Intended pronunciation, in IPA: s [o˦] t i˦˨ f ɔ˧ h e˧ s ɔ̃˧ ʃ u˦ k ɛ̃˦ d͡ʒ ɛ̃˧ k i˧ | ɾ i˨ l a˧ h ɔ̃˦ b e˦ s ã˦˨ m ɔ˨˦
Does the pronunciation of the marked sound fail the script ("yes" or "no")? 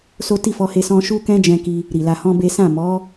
no